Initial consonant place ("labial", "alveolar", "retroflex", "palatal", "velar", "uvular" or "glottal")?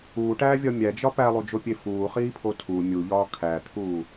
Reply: retroflex